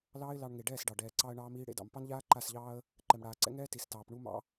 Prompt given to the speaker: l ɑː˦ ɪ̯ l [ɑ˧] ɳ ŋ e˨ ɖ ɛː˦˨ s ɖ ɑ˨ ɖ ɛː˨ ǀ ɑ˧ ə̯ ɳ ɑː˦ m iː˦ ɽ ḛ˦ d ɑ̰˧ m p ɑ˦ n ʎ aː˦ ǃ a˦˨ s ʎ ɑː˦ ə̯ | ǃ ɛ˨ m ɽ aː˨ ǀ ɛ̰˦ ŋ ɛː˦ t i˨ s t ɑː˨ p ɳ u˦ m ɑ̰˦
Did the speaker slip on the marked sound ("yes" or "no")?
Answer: no